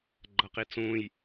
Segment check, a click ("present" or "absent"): present